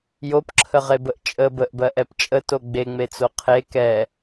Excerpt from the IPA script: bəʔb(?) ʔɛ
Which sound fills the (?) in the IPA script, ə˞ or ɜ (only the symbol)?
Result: ɜ